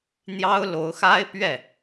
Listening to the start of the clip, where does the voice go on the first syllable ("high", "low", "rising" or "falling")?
high